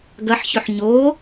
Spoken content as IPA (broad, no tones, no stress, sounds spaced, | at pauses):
ɡ ɐ ħ ç ɵ ħ ɲ o